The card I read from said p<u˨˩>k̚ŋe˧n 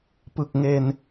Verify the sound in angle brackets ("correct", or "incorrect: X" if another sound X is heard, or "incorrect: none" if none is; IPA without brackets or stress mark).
incorrect: ɯ˨˩